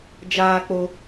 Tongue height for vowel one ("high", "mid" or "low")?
low